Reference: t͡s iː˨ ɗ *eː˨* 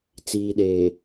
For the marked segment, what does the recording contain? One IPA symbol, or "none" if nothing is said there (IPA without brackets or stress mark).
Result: eː˨